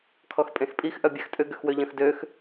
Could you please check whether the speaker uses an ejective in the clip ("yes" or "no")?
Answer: yes